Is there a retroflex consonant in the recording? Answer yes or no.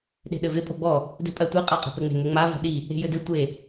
no